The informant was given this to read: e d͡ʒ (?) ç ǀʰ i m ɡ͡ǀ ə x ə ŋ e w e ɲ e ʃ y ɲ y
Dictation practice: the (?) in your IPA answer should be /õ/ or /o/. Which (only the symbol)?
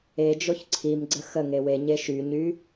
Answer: o